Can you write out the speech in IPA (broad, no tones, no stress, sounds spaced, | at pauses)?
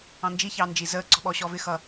ɑ̃ n d͡ʒ i ç ɑː n d͡ʒ i z əː ǀ ɔ̤ ɓ ɔː ɕ ɔː v ɪ x ʌ